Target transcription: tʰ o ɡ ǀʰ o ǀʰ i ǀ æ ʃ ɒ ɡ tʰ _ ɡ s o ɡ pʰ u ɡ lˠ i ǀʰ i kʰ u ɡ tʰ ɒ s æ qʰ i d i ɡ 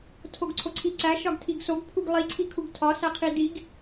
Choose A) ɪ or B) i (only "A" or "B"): B